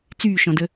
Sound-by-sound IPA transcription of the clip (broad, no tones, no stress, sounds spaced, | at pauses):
t͡s yː ʃ ɔ̃ d ə